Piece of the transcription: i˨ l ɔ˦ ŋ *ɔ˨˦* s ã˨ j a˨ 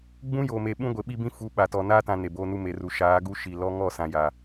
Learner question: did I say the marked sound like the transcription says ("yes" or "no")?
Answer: no